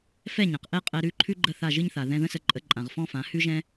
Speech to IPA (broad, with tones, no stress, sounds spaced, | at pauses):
f ɛ˥˩ ɲ ã˩ q ʔ ɛ˥ qʼ ɛ˧ ɾ ʉ˥˩ ǃʰ ʉ˥ ɡ͡ǃ ə˥˩ θ a˥˩ ʒ ɨ˥ ɲ θ a˩ ð ɛ̃˧ ð ə̃˥ s ə˧ ǃʼ ə˩˥ ǃʼ ã˩ ʁ f ɔ̃˥ f ã˩˥ h ʉ˥ ʒ ɛ̃˥